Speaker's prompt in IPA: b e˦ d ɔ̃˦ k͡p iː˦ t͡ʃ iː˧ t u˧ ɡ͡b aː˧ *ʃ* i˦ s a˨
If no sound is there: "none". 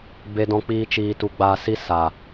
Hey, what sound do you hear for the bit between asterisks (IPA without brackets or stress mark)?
s